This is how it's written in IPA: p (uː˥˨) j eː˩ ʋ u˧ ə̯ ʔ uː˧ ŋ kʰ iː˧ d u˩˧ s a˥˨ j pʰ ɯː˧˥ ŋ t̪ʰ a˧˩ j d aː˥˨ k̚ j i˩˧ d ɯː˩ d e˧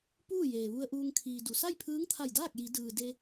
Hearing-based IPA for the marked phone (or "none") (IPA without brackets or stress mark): uː˥˨